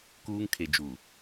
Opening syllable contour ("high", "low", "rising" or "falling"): high